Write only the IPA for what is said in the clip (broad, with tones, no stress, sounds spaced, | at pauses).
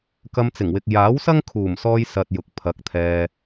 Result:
k ɐ˧ m t͡s ɪ˨˩ ŋ w ɪ˨ k̚ j aː˨˥ w s ɐ˥ ŋ kʰ uː˨˩ m s ɔː˧ j s ɐ˧ t̚ j ʊ˨ k̚ pʰ ɐ˨˥ k̚ t̪ʰ ɛː˧